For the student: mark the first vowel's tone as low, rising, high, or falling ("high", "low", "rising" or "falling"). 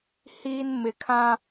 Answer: high